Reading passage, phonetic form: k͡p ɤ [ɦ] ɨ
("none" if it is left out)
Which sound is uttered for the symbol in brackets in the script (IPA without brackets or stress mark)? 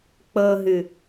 ɦ